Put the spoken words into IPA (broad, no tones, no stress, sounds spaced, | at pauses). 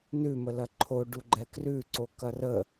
n ʉ m ə l ɐ ǃʰ o ɖ u ɡ͡ǃ ɛ k r ʉ ǀ o k ɐ r ə